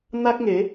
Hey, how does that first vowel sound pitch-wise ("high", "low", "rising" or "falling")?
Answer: high